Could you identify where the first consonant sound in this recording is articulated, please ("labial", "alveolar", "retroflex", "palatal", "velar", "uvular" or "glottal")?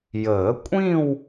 palatal